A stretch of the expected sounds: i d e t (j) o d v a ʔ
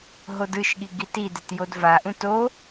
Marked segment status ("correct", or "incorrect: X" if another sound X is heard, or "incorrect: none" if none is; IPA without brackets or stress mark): correct